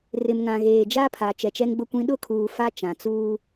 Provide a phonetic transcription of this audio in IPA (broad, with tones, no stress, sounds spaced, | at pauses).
r ɪ˨ m ŋ ã˨ ɣ eː˨ d͡ʒ a˦ pʰ a˨ t͡ʃ ɛ˨ t͡ʃ ɛ˦ ŋ ɡ͡b ʊ˦ kʷ ĩ˦ ɗ ʊ˦˨ kʰ uː˨ f a˦ t͡ʃ ã˨ t͡s uː˦